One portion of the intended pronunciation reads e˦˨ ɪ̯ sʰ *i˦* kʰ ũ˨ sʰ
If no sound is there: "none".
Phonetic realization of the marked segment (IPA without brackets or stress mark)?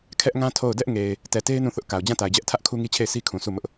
i˦